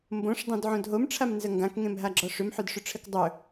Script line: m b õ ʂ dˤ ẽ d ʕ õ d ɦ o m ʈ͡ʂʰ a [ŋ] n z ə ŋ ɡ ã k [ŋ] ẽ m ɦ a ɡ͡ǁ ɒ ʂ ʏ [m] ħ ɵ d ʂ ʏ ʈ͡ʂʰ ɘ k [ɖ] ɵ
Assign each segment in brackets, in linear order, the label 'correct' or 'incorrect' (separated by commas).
incorrect, correct, correct, incorrect